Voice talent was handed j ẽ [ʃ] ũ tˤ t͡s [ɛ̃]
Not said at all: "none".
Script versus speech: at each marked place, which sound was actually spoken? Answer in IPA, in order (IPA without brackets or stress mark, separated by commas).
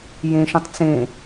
ʃ, ẽ